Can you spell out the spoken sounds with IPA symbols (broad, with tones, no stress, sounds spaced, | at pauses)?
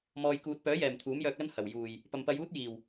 m ɔː˨ j k uː˨ t̚ p œː˨˥ j ɛː˨˩ m t̪ʰ uː˨˥ m j œː˧ k̚ l ɐ˥ n h ɐ˨˩ w j uː˨˩ j | p ɐ˨ m p ɐ˧ j uː˥ t̚ j iː˨˩ w